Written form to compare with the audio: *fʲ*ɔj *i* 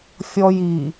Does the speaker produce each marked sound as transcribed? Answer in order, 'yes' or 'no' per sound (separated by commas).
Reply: yes, yes